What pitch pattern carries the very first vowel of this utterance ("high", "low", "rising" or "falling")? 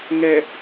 low